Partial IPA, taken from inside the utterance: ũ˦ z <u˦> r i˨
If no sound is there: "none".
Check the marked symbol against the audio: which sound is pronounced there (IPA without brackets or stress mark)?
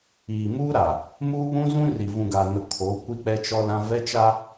ũ˦